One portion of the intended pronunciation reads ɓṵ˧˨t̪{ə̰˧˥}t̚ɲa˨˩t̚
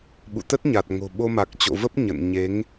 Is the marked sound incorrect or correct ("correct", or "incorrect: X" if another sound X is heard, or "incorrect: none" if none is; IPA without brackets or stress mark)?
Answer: incorrect: ə˦˥